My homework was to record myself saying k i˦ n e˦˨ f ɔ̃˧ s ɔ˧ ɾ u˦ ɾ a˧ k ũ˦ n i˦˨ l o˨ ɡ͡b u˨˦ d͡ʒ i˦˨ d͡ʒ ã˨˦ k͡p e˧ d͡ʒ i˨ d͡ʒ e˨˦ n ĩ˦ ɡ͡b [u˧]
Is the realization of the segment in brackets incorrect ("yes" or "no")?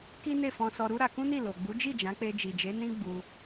no